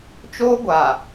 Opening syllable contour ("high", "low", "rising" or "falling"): high